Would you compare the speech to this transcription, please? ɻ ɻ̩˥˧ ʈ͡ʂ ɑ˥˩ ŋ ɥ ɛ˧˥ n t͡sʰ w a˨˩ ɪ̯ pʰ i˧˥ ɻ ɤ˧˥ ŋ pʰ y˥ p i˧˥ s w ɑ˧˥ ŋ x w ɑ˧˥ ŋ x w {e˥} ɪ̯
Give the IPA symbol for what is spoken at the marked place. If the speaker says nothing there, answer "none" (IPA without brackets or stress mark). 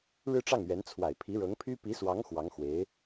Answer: e˧˥